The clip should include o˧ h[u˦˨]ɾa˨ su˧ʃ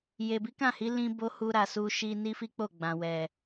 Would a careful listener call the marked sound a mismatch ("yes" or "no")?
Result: yes